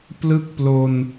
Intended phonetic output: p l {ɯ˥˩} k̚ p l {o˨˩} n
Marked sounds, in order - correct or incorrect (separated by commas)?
correct, incorrect